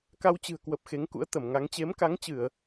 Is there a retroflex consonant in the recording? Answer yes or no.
no